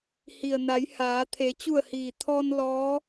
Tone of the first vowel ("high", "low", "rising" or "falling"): low